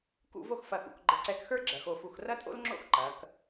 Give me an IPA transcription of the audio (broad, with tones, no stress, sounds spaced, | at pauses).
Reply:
k ṵ˥˧ v o˥˧ x f ɐ˧˩ x ṵ˩˧ k ɡ͡ǃ ə˧˩ ǀ ɛ˧ k x ə˞˥ ɡ͡ǁ ɐ˩˧ x o˧˩ f u˧˩ x r ɐ˥ tʼ o̰˥ l ŋ͡ǁ o̰˥˧ x ǃ ɐ˩˧ k